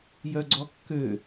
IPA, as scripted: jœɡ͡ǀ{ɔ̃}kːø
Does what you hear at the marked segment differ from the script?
yes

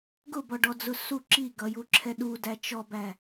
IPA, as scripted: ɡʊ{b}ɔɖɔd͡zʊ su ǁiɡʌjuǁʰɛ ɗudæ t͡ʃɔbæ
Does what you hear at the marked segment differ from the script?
no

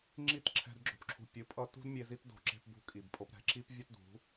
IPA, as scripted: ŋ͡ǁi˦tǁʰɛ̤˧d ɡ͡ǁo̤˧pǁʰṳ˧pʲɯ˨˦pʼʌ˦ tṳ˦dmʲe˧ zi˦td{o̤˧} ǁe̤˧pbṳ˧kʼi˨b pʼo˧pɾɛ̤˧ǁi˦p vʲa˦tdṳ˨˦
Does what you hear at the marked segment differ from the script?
no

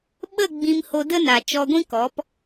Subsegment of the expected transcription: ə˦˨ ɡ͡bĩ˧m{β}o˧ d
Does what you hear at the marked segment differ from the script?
yes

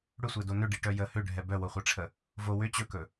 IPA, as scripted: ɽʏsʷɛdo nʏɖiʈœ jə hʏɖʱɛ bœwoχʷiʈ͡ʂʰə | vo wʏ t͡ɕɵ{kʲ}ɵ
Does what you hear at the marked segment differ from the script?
yes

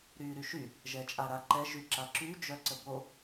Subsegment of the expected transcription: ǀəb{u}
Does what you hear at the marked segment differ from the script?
yes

